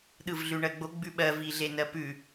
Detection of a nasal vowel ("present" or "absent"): absent